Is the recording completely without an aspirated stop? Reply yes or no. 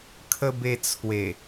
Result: no